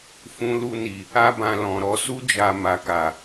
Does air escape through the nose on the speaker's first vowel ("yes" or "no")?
yes